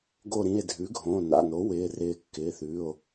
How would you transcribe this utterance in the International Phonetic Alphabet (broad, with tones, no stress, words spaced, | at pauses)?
ɡo˧˩ɾĩ˩˧˩e̯dʱʉ˩˥ ɡʱõː˩˧˩na̰˩˧˩no˩˥ wɪː˩˧˩ rɪː˧˩ kːɪː˩˧˩θʉː˩˧˩o̯